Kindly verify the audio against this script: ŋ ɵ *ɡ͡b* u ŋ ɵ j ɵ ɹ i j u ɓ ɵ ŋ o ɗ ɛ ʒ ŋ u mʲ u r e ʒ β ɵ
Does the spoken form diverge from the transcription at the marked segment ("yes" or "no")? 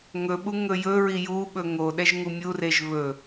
yes